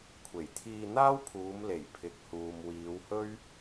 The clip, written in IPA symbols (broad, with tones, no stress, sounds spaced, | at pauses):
kʷʰ e˨˩ j t̪ʰ iː˧ n̪ aː˥ w pʰ uː˨˧ m l e˨˩ j pʰ ɪ˨˥ k̚ h uː˨ m w iː˨˧ w h ɵ˥ ɥ